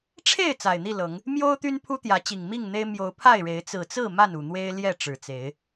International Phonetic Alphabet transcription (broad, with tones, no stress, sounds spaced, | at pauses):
ʈ͡ʂʰ e˥˨ ɪ̯ t͡s a˨˩ ɪ̯ n̪ i˥˨ l ɤ˨˦ ŋ | m j o˦ ʊ̯ t̪ y˦ n pʰ u˦ t̪ j ä˨˦ t͡ɕ i˨˩ ŋ m i˥˨ ŋ n̪ e˦ ɪ̯ m j o˨˦ ʊ̯ pʰ a˥˨ ɪ̯ ɻ e˨˦ ɪ̯ t͡s ɹ̩˨˩ t͡s ɹ̩˥˨ m a˥˨ n u˨˩ n̪ w e˦ ɪ̯ l j ɛ˥˨ ʈ͡ʂ ɻ̩˨˩ t͡s e˨˦ ɪ̯